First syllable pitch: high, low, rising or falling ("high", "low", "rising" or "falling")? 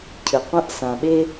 low